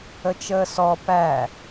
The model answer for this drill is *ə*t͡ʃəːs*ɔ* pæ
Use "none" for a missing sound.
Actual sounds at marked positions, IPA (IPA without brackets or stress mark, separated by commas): ə, ɔ